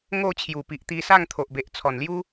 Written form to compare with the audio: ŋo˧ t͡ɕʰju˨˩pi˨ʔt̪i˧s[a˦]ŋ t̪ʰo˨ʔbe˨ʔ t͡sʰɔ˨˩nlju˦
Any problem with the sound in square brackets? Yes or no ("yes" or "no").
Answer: yes